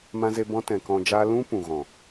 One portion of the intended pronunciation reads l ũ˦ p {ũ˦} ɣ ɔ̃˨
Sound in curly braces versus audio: incorrect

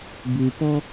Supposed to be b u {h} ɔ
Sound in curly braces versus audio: incorrect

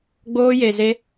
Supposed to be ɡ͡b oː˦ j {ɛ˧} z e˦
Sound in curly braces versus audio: incorrect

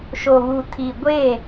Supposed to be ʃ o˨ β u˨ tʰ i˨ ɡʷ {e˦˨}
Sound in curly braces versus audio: correct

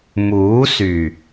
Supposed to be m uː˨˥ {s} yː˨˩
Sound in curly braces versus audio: correct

